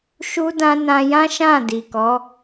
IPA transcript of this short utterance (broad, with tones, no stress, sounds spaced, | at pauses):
ʃ u˦ d ã˦ n ã˧ j ã˦ ʃ ã˦˨ d i˨ k ɔ˨˦